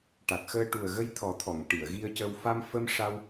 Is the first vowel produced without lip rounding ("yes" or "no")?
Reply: yes